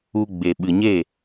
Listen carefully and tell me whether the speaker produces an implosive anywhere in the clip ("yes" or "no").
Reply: yes